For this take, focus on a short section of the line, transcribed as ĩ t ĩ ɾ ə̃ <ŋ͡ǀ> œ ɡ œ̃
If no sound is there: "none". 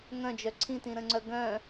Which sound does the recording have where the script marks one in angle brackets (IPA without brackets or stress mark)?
ŋ͡ǀ